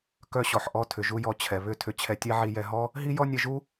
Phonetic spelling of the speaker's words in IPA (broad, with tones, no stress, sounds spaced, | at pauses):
k œ˧ ɕ ɔ˩ ħ ʔ ɔ˧ tʰ ʏ˩ ʒ u˧ j ɔ˧ t͡ɕʰ ɛ˩ β ʏ˧ tʰ ʏ˧ t͡ɕʰ ɛ˧ tʲ ɛ˥ ʕ i˧ j ɛ˧ ɦ ɔ˥ | ɦ i˥ j ɔ˥ nʲ ɛ˧ ʒ u˥